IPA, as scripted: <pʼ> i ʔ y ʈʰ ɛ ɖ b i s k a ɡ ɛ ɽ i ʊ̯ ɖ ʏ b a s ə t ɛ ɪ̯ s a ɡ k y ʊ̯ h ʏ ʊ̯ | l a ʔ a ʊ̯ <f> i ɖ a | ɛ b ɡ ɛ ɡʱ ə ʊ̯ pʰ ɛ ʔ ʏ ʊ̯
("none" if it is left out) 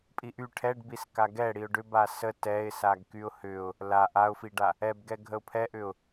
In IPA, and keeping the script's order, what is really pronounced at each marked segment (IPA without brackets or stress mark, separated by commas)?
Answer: pʼ, f